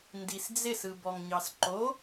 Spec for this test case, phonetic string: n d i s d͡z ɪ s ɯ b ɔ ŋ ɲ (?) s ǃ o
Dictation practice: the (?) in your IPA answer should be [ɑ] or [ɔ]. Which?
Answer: ɑ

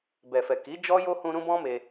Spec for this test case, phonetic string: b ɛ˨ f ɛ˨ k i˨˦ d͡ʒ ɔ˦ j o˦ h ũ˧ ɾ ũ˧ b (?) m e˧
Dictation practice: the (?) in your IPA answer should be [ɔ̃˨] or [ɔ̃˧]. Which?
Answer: ɔ̃˧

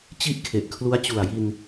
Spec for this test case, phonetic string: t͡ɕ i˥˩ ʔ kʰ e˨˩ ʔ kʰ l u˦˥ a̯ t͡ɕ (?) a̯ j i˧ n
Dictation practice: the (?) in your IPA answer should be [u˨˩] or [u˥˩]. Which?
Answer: u˨˩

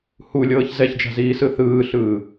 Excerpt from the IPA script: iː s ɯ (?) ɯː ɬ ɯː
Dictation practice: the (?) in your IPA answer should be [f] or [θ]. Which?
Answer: θ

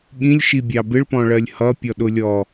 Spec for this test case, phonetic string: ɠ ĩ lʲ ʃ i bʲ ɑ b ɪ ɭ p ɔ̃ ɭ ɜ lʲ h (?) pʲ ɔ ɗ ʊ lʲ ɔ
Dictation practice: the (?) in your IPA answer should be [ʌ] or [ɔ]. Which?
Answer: ʌ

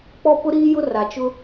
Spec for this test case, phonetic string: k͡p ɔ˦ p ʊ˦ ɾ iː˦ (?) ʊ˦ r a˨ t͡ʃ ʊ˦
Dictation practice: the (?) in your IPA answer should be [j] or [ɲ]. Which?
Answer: j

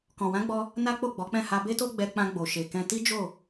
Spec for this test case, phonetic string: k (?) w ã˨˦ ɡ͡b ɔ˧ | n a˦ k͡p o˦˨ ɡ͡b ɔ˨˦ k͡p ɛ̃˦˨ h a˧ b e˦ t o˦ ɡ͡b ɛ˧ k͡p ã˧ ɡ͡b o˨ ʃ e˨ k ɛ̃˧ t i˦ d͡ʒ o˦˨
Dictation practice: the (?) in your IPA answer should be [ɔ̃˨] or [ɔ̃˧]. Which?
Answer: ɔ̃˨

